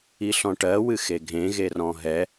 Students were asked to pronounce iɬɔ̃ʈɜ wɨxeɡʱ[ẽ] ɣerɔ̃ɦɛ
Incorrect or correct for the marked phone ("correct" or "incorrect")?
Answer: correct